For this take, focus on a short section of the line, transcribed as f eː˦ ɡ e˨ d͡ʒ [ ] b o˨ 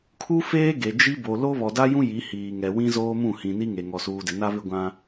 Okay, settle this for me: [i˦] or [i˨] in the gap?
i˦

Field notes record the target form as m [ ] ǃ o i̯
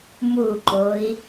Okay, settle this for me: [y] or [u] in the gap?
u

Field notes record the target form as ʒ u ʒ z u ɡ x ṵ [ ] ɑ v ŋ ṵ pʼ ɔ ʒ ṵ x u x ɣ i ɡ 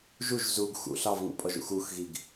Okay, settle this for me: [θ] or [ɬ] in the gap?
ɬ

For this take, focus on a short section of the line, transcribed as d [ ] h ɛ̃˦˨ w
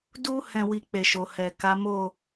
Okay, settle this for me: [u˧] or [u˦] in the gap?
u˦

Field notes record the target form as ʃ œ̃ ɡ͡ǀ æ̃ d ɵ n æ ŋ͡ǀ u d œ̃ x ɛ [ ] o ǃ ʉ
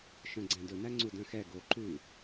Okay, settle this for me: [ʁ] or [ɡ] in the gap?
ɡ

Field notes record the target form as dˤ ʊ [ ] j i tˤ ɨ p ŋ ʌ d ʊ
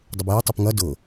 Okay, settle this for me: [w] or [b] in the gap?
b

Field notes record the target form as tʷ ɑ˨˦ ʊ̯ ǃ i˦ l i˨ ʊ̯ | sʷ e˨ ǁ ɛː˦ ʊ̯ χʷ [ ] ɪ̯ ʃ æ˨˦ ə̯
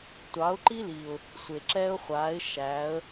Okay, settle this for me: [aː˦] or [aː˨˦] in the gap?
aː˨˦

